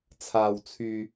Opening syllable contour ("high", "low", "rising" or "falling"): low